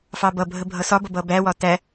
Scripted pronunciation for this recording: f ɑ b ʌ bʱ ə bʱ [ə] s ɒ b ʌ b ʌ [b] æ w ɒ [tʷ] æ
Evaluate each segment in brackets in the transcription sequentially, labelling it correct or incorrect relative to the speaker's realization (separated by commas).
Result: incorrect, correct, incorrect